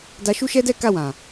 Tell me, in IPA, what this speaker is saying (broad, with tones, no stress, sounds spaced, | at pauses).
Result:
d a˧ ʃ u˦ ʃ ɛ˦ d ɛ˦ k a˦˨ w ã˨